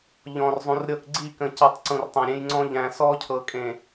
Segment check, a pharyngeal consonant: absent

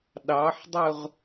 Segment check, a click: absent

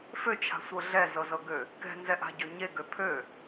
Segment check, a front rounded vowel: present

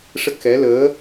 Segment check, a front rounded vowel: absent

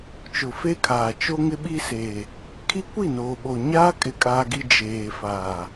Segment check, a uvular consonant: absent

